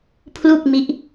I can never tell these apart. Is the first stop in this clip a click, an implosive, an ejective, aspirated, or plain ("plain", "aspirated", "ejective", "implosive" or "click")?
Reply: aspirated